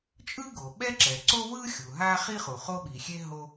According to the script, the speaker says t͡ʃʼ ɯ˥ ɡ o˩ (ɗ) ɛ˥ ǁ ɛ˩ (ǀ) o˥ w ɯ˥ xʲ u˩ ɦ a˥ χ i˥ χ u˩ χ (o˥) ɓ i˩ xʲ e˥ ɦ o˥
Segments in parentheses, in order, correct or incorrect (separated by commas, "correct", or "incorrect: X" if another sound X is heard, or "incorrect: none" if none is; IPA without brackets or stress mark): incorrect: ɓ, correct, correct